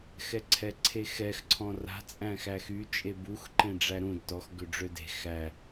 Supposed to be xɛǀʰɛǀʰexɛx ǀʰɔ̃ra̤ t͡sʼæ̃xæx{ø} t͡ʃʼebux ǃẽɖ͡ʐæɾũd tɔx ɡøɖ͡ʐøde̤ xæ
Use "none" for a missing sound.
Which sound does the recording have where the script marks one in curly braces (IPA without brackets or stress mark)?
y